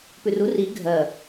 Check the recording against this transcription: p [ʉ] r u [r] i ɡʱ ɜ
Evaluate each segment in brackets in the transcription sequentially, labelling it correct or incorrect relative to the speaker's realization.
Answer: correct, correct

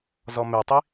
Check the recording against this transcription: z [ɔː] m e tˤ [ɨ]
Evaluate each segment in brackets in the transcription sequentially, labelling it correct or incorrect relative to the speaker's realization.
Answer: incorrect: ɔ, incorrect: i

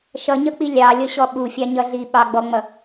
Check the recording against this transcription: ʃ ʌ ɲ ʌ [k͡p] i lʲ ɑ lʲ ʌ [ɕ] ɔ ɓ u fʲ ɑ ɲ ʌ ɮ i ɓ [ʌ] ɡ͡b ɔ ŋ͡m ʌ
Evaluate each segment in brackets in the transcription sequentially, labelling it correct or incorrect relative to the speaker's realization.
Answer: correct, correct, incorrect: ɑ

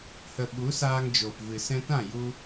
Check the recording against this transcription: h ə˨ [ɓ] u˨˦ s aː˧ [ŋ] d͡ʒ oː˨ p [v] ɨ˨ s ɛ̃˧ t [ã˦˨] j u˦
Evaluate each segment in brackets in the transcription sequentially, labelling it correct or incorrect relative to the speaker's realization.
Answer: correct, correct, correct, correct

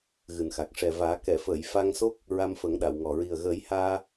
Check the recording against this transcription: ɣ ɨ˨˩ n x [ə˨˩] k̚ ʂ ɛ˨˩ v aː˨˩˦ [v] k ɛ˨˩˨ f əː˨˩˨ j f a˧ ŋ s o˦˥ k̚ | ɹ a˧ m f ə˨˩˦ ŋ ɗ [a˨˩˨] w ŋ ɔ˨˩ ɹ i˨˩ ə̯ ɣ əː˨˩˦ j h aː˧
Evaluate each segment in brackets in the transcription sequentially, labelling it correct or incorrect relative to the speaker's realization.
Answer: incorrect: a˨˩, incorrect: none, correct

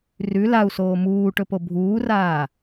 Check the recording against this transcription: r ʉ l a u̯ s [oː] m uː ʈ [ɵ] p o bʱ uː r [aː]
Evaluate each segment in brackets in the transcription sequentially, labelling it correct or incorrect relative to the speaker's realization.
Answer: correct, correct, correct

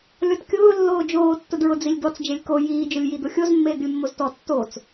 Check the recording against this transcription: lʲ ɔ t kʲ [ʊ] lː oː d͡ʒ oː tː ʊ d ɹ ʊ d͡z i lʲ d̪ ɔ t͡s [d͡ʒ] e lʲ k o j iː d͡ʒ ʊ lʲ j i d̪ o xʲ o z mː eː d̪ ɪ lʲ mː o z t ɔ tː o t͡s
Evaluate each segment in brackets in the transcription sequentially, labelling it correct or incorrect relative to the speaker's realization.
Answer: incorrect: ʊː, correct

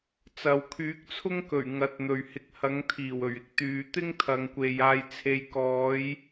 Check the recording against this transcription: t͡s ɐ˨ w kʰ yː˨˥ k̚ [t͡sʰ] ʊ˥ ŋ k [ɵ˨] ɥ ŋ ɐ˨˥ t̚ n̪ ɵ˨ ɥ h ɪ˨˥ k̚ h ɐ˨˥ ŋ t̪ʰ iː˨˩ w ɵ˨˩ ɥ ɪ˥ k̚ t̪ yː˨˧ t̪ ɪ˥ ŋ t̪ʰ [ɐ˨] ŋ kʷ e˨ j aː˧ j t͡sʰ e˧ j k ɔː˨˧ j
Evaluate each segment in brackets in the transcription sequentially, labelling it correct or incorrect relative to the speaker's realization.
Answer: correct, incorrect: ɵ˨˩, correct

